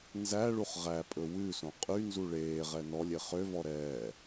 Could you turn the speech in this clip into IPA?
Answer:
n z æ ɭ u χ ʁ æ pʼ ɵ w ʉ s õ qʼ y n z u ɭ eː ʁ ɛ n ɔ lʲ e χ ø v ɔ ɾ ɛː

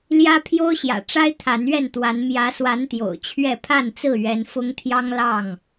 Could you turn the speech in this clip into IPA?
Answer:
l j ä˦ pʰ j o˦ ʊ̯ ɕ j ä̰˨˩ ʈ͡ʂ a˦ ɪ̯ t̪ʰ a˨˦ n ɥ ɛ˥˨ n t̪ w a˨˦ n m j ä˨˦ s w a˨˦ n t̪ j o̰˨˩ ʊ̯ t͡ɕʰ ɥ ɛ˥˨ pʰ a˥˨ n t͡s ɹ̩˥˨ ɥ ɛ˨˦ n f ʊ˦ ŋ t̪ʰ j ɑ˦ ŋ l ɑ˥˨ ŋ

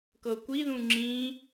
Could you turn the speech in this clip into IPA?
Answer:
k ɤ kʷ i ð ũ ŋ͡ǁ ĩ

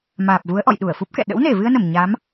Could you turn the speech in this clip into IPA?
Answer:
m aː˨˩ p̚ v u˨˦ ə̯ ʔ ɔ̰˧˨ j ɗ u˧˩ ə̯ f u˦˥ p̚ k ɛ̰˧˨ ɗ ə̰˧˥ w n e˧˩ v ɨ˧ ə̯ n ə˧˩ m ɲ a˨˦ m

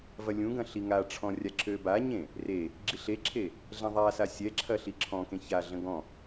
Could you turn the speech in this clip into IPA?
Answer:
v ɐ lʲ ũ ɡ ɐ̃ ɬ i ŋ a ʈ͡ʂʰ ɔ̃ rʲ a ǁ ø b a ɲ ẽ | r e | ɡ͡ǁ i ɬ e ǁʰ e | ɮ ɛ̃ ðˤ a s a sʲ ɛ ǁʰ ɐ ɬ i ǁʰ ɔ̃ k ẽ ç a ɮ ə̃ ɡ ɔ̃

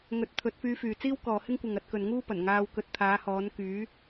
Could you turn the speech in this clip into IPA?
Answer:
ŋ ɵ˨˥ t̚ t̪ʰ ɵ˨˥ t̚ f yː˧ f yː˨ t͡s iː˥ w k ɔː˨ h ɪ˥ ŋ kʷ ɪ˨ ŋ ɐ˧ t̚ k ɵ˨ n ŋ uː˥ p ɐ˨˩ n ŋ aː˧ w k ɵ˧ t̚ t̪ʰ aː˨˥ h ɔː˨˥ n k yː˨˥

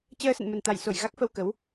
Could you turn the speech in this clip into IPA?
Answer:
t͡ɕ əː˧ s ə̰˧˨ n m ə˨˩ n t̪ a˧˩ j s o˧˩ j ɣ a˦˥ k̚ f ə˧ w k ə˨˦ w

